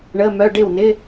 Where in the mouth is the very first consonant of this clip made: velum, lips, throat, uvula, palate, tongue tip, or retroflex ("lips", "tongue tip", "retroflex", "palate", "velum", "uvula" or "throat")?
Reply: retroflex